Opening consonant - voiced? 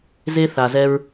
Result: yes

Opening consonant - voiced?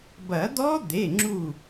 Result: yes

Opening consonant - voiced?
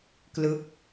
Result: no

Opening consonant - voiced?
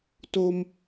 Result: no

